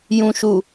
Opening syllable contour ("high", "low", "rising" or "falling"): low